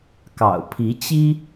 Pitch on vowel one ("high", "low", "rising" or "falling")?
low